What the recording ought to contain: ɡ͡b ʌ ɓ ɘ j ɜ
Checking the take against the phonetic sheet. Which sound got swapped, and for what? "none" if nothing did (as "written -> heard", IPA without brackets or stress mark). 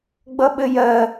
none